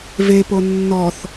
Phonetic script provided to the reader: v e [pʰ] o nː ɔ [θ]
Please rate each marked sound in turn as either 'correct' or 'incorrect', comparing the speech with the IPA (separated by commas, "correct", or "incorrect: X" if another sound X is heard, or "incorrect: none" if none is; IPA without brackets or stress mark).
incorrect: p, correct